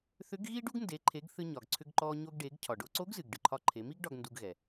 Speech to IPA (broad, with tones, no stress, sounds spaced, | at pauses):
θ ʏ˧˥ ɡ ɣ iː˥ ɖ u˥ ɡ n d e˩˧ ǃʰ e˩˧ ɡ θ ɨ˧ ɲ ɒ˩ ɡ ǀʰ ʏ˧ ɡ ǃ ɔː˧ ɲ o˧ ɡ ɖ eː˩˧ ɡ cʰ ɒ˩ ɖ o˧ ǀ o˧˥ ɡ z ɨ˩ ɡ ɖ ɨ˩ ǃʰ ɒ˧ ǃʰ e˩˧ m i˥ ɡ ɖ ɒ˧ ɡ n d u˧ ɡ ɣ ɛ˩